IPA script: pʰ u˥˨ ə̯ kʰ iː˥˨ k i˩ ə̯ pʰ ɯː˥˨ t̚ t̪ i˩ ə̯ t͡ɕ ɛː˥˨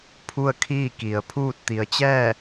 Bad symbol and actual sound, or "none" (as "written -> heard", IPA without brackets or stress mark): ɯː˥˨ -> uː˥˨